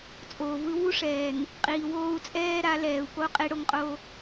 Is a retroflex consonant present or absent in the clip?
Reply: present